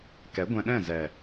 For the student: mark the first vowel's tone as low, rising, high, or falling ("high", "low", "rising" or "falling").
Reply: rising